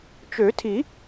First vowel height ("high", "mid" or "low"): mid